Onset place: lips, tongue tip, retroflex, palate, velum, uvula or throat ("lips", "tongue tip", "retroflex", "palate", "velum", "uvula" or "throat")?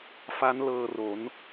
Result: lips